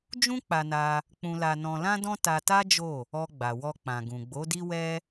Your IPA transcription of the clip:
d͡ʒ ũ˦ k͡p a˧ n a˧ | k͡p ũ˧ l a˧ n ɔ̃˧ l ã˦ d ɔ̃˦ t a˧ t a˦ d͡ʒ o˦˨ | ɔ˧ ɡ͡b a˨ w ɔ˧ k͡p ã˨ ɡ ũ˨ ɡ͡b o˨˦ d i˦ w ɛ˦

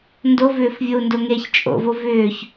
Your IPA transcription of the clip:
n d o v ʏː f vʲ o u̯ n d o ŋ e ç t͡ʃʼ o̰ v o v ʏː ç

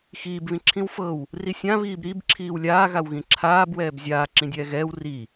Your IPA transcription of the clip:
x iː b β ĩ ǁʰ ĩ w f ɤ w | r i sʲ ã β iː b ɾ i b ǁʰ iː w lʲ aː ɣ a w ɣ ĩ ǁʰ aː b w ɛː b zʲ aː ǁ ĩ dʲ ɛː ɣ ɛː w r i

